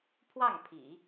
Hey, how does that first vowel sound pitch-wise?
falling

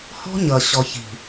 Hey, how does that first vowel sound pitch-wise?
high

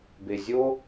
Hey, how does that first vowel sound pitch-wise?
low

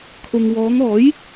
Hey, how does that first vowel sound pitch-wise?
low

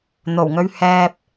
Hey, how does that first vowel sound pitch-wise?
low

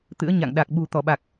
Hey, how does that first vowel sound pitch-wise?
rising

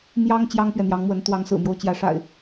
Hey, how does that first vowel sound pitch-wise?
high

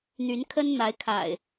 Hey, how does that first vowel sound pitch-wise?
rising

